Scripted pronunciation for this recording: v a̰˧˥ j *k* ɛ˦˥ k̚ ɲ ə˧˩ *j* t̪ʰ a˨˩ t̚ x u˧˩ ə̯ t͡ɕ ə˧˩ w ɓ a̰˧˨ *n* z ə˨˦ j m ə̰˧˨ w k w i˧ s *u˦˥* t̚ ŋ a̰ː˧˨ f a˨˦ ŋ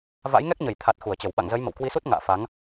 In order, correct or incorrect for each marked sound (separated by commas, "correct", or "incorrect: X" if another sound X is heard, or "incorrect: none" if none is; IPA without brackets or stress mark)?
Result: incorrect: ŋ, correct, incorrect: ŋ, correct